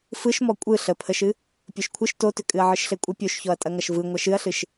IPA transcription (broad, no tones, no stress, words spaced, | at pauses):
fɯʃmɔ kʷʼɯ ɬəpʰəʃɨ | pʲoʃkʷʰɯʃ totʏ kʼɨɐ̯ʕɯʃɬekʷʼə pʲoʃçɔɐ̯tʼɐŋɐʃ vɯ ŋʷɐʃɨɐ̯ɬɨʃ